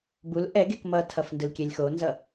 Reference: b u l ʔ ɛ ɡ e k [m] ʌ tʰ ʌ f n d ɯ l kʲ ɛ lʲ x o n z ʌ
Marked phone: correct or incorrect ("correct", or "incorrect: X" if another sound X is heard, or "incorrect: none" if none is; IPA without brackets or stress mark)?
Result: correct